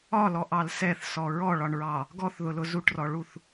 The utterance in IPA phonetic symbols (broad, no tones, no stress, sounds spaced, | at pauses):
ɒ l ɔ ʔ ɑ l s ɛ θ s ɔ ɹ ɔ ɭ ɒ ɳ ɹ ɑ | ɡ ɔ θ ð ʊ l ʊ z u ʈ r ɔ ɭ u θ